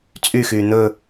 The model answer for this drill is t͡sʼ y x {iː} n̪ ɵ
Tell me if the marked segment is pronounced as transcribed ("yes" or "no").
no